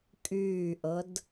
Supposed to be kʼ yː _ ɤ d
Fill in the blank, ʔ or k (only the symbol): ʔ